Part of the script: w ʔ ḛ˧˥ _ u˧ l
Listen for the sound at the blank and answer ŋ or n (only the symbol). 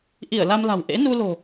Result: n